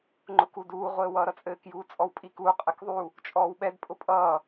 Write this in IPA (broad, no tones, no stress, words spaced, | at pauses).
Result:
ŋ͡ǃʊkuduː ʁʷɘːwʌːɾʌt͡sʼɘːk juːt͡sʼɔwpʼikuː qʼɘkðˤu | t͡ʃʼɔːwɓɛd pʼʊpʼʌː